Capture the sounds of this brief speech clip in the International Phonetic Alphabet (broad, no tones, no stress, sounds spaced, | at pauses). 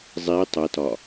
zˤ i tˤ ə t ɒ